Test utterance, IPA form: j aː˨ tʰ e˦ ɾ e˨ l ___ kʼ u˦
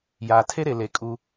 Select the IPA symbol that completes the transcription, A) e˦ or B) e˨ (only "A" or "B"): B